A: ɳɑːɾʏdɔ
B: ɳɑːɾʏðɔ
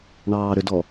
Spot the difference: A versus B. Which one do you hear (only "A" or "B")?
A